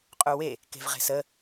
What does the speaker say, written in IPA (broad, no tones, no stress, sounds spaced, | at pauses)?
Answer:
qʼ u w e | k e̤ v ʁ e̤ s ə